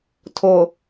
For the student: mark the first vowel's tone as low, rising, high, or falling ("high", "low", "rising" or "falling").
low